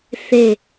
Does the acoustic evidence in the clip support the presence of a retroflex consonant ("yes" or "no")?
no